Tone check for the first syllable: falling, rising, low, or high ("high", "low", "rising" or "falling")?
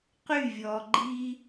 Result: falling